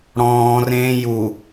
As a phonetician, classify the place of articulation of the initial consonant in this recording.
retroflex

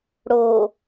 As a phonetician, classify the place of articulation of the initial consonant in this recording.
retroflex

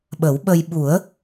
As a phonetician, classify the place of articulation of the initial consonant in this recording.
labial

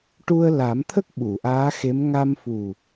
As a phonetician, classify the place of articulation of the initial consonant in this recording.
retroflex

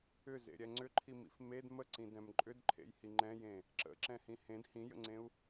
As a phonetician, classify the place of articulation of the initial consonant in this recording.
alveolar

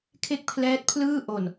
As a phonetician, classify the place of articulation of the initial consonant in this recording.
velar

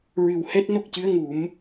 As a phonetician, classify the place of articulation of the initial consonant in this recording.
alveolar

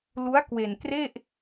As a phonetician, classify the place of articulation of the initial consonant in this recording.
alveolar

